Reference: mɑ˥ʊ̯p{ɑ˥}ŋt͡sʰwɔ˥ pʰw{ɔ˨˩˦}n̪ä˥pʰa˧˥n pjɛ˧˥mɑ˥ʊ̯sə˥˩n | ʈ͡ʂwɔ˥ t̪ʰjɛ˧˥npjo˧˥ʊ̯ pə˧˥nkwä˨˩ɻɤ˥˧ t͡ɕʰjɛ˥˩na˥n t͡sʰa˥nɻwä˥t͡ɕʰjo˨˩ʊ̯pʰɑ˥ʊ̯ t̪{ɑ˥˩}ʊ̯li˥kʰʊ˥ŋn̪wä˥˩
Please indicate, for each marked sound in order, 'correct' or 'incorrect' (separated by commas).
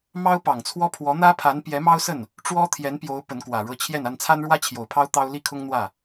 incorrect, incorrect, incorrect